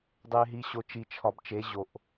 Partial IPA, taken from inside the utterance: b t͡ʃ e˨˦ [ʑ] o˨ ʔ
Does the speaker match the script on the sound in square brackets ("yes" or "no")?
yes